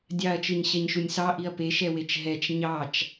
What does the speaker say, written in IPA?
dʲ ɑ ɐ̯ t͡ʃ ɯ ɲ ɕ ɛ ɲ ʃ u nʲ s ɑ ʔ i ɐ̯ p e ʃ ɛ w e t͡ʃ ɦ ɛ t͡ʃ ɲ ɑ t͡ʃ

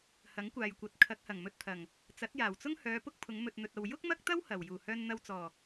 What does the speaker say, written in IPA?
h ɐ˨˥ ŋ kʷ aː˨ j kʷ ɐ˨˥ t̚ kʰ ɐ˨˥ k̚ h ɐ˨˩ ŋ m ɵ˧ t̚ t̪ʰ ɐ˨˩ ŋ | t͡s ɐ˨˥ t̚ j aː˨˩ w t͡s ʊ˥ ŋ h œː˨˧ p ʊ˥ k̚ pʰ ʊ˨˧ ŋ m ɵ˨ t̚ n̪ ɵ˨ t̚ ɐ˨ w j ʊ˥ k̚ m ɐ˥ k̚ t̪ ɐ˥ w h ɐ˨˩ w j uː˨˩ h œː˧ n n̪ ɐ˧ w t͡s ɔː˨˩

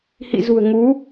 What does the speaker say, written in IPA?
h ḭ˧˨ z ṳ˨˩ ə̯ ŋ u˨˦

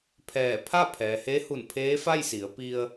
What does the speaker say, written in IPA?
pʰ ɛː˧˩ pʰ a˥˨ pʰ ɛː˩ h e˧˥ h u˧˩ n pʰ eː˧˥ f a˥˨ j s i˩˧ ə̯ p i˧ ə̯

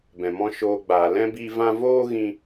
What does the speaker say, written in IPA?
b ɛ̃˨ m ɔ̃˧ ʃ oː˧ ɡ͡b aː˨ l ɛ̃˦ b i˦ v ã˦ v oː˦ ɣ ĩ˧

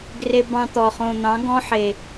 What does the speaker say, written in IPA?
ɡ r e˧ b ɑ̃˧ t̪ ɔ˨ χ õ˨ n̪ ɑ̃˨˦ ɡ ɔ̃˦ ħ e˨

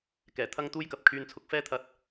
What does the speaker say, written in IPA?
k ɛː˨˩ t̪ʰ ɐ˥ ŋ t̪ uː˥ j k ɐ˨ p̚ kʰ yː˧ n t͡sʰ ʊ˧ k̚ f ɛː˥ t̪ʰ ɐ˧ t̚

